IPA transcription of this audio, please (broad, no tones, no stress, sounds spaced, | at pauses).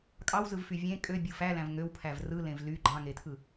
kʼ ɑ w z ɯ v f y vʲ ẽ kʼ ø bʲ ɯ f æ l æ̃ v ŋ ø w pʰ æ v r ɯ l ẽ v l y ɡ͡ǃ ɑ̃ ŋ e tʰ ɯ